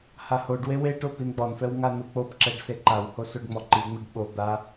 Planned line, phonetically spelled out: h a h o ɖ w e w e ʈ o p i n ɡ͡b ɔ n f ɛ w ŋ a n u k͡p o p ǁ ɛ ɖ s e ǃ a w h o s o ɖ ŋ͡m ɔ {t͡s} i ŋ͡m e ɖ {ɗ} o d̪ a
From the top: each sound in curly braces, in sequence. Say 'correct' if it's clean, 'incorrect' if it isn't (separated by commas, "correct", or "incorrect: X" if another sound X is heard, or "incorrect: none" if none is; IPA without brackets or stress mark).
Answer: incorrect: ǃ, incorrect: ɓ